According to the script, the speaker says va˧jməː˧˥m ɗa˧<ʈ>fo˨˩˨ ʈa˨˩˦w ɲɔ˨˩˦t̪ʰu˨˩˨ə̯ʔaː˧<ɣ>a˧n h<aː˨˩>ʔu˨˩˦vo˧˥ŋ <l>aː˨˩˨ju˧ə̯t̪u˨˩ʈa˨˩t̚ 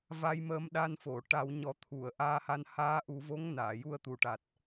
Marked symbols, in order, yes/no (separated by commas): no, no, no, no